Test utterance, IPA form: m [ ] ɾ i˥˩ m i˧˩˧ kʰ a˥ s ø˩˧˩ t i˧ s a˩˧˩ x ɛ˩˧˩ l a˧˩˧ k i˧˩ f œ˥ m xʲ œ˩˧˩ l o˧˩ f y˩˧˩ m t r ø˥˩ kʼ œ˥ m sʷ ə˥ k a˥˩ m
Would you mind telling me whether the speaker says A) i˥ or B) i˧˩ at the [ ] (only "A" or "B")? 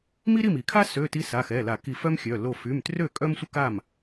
A